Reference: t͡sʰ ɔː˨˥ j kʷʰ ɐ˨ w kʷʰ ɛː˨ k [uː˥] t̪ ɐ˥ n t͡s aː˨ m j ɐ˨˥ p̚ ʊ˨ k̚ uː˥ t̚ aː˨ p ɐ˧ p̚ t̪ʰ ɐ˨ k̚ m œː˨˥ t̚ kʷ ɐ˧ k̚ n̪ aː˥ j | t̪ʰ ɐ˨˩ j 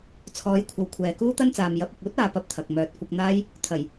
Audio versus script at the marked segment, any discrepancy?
no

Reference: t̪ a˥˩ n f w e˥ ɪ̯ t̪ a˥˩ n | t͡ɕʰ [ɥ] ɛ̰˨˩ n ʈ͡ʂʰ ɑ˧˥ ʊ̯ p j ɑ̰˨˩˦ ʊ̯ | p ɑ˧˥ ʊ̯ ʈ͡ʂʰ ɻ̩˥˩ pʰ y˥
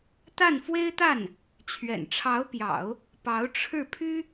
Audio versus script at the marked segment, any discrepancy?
no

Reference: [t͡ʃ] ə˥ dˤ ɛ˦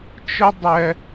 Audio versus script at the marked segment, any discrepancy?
no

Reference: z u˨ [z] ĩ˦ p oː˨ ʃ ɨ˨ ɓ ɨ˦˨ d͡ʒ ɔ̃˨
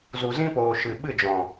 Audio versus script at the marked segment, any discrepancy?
no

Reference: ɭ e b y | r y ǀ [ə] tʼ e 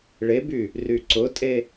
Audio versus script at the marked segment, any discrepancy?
yes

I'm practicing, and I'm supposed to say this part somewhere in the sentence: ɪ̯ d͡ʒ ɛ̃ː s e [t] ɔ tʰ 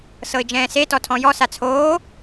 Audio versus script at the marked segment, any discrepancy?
no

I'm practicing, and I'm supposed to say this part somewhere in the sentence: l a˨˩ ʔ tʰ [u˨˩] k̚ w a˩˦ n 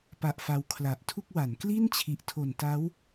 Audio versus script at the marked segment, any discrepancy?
yes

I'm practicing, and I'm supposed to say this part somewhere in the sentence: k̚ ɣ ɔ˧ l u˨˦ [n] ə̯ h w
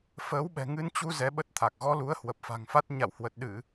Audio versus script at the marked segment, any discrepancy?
yes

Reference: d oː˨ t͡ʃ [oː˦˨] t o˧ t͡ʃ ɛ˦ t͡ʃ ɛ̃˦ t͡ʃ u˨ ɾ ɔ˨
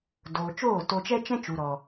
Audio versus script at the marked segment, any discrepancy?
no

